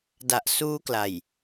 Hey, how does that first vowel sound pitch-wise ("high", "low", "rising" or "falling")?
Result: low